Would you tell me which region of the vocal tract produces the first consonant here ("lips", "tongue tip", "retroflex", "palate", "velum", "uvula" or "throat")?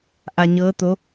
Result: throat